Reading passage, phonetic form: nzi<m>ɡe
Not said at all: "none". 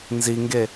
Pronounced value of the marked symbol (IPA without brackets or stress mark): ŋ